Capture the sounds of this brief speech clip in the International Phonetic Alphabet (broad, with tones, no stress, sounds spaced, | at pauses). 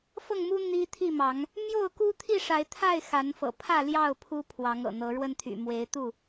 f ɤ˥˨ ŋ m u˦ n̪ i˦ t̪ʰ i˥˨ m ɑ˨˦ ŋ | m j o˥˨ ʊ̯ k u˦ t̪ʰ i˥˨ ʂ a˨˦ ɪ̯ t̪ʰ a˥˨ ɪ̯ x a˨˦ n f ɤ̰˨˩ pʰ ä˥˨ l j ɑ˥˨ ʊ̯ pʰ u˦ pʰ w ɑ˨˦ ŋ ɤ̰˨˩ n̪ ɤ˨˦ ɻ w ə˦ n t̪ʰ y̰˨˩ m w e˨˦ ɪ̯ t̪ u˥˨